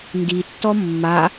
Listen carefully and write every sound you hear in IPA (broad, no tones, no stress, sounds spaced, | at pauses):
n d i tː ɔ mː a